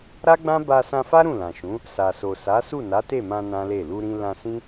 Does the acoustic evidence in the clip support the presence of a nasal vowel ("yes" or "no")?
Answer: yes